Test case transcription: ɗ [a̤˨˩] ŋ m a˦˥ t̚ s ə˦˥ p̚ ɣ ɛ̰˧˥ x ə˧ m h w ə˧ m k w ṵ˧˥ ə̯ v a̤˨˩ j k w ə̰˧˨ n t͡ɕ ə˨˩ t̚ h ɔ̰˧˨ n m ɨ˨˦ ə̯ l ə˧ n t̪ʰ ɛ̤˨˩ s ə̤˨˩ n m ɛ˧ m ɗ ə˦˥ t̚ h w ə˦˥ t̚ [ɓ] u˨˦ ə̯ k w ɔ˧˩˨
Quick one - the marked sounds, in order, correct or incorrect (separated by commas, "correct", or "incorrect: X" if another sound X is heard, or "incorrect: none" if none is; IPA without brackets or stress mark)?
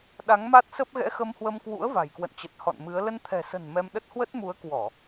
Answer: incorrect: a˨˦, incorrect: m